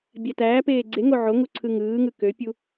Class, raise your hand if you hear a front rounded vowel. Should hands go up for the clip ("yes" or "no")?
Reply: yes